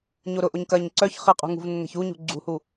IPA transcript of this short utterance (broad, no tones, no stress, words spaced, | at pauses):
ɲoɾʊʔoɲ kɐɲ ǀœç χɪ qʼṳŋṳvnːɛ̤ç uɲṳ ɡ͡ǀṳhu